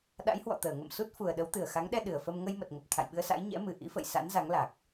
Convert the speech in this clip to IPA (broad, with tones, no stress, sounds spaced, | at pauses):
ɗ a̰˧˥ j h w ɔ̰˧˨ t̪ əː˧˩ ŋ ə̰˧˨ m s u˦˥ t̚ f u˨˩ ə̯ ɗ ə˨˦ w t̪ ɨ˨˩ ə̯ x a˨˦ ŋ ɗ ɛ˧ ɗ ɨ˧˩ ə̯ f ə˧ m ŋ ə˧ j m ə˨˩ t̚ ŋ ə˨˩ p̚ t̪ʰ a̰˧˨ j ɓ ɨ˧ ə̯ s a̰˧˥ j ɲ ɛ̰˧˥ m ɨ˨˩ ʔ ḭ˧˥ f ə̰˧˨ j s a̰˧˥ n z a˨˦ ŋ l a˨˩ k̚